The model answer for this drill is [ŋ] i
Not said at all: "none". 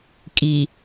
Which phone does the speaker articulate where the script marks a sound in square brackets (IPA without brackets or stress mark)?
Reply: kʼ